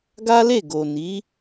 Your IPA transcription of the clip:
ɡ a˦ l e˦˨ ɡ o˨ n i˨˦

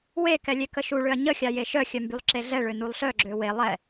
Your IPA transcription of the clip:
w e k ɛ lʲ e k ə ʃ u ɭ ø ɐ̯ ɲ ə xʲ a j e ʃ œ xʲ œ m b y lˠ ǁ e ɮ ɛ ɭ ø n u lˠ ɬ œ ɡ͡ǁ ø w e lˠ ɛ

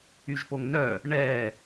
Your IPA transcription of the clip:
y ʒ p o ŋ n œ | ɳ ɛ

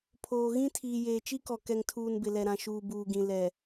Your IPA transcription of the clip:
pʰ oː˨ ɣ ĩ˦ tʰ iː˨ j eː˨ t͡ʃ i˦ k ɔ˨ k ɛ˨ ŋ tʰ uː˨ n b ɪ˨ l ɛ˨ ɾ ã˨ ʃ uː˨ b uː˨ ɡ ĩ˨ l ɛ˨

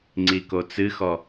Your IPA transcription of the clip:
ŋ͡ǀ i k o t͡s ɨ x ɔ

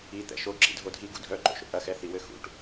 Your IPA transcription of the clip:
i t̪ ɛ̰ ʃ o ǁ ḭ dʱ o dʱ i ɡ ṵ dʱ œ ǃ o̰ ʃ o̰ ʔ ɐ x ɛ θ i w ɘ x ṵ ʈ

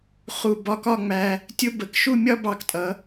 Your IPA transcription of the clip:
χ u˧˩ b ɒ˧ k ɒ˥˧ ŋ͡m æ˧ | tʲ ʊ˥ b ə˧˩ k ʃ u˥˧ mʲ ɒ˥ b ɑ˧ k tʼ ʌ˩˧

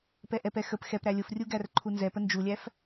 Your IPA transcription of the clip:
p ɛ ʔ ɛ p ɛ x ə p x ɛ p ɾ æ lʲ ʊ f rʲ u ɡ æ r ǃʰ u n z ɛ p ə n d͡ʒ u lʲ æ f

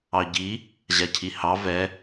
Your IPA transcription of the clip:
ɑ ɟ i | ʑ a cʰ i h ɑ v ɛ

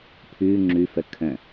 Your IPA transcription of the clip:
pʰ ʉ ŋ͡ǁ ʉ f ə kʰ ə̃

